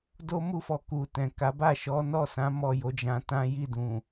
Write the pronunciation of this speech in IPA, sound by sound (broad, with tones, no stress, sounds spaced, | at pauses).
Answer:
d o˦ m u˦ f ɔ˧ k u˨ t ɛ̃˨ k a˨˦ b a˦˨ ʃ ɔ˨˦ n ɔ˦˨ s ã˨˦ m ɔ˦˨ j o˨˦ d͡ʒ ã˧ t ã˦ j i˦˨ d ũ˨